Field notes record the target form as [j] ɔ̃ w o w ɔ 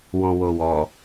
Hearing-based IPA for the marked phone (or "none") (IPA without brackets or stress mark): w